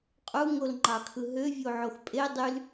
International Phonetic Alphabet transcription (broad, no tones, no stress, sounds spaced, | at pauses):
qʼ u ŋ o l ŋ͡ǃ ɑ kʰ ɯ ɦ ø vʲ o ʕ o x pʼ e dˤ y l